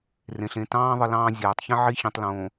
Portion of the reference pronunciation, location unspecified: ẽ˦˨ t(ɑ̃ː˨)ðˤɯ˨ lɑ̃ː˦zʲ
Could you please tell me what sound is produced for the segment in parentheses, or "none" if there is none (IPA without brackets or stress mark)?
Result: ɑ̃ː˦